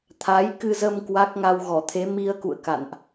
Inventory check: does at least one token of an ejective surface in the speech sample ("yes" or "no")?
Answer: no